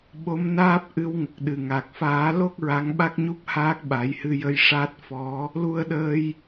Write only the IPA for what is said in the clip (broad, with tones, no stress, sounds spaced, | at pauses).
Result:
ɓ o˧˥ m n aː˦˥ p̚ ʔ ɨ˧˥ w ŋ ə˨˩ k̚ ɗ ɨ˨˩ ŋ a˨˩ k̚ f aː˨˩˦ l o˦˥ k̚ ɹ a˧˥ ŋ ɓ a˦˥ k̚ ɲ u˦˥ p̚ h aː˦˥ k̚ ɓ a˨˩˦ j h ɨ˧ j ə˧ j ʂ a˦˥ t̚ f ɔ˧˥ | l u˧ ə̯ ɗ əː˧ j